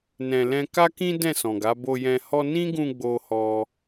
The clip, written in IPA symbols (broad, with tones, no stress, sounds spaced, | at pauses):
n ɛ̃˨ l ɛ̃˧ k a˦ k ĩ˦ d ɛ̃˦˨ s ɔ̃˨ ɡ a˨˦ b o˧ j ɛ̃˧ h ɔ˦ n ĩ˦ ɡ ũ˧ ɡ͡b o˦ h ɔ˦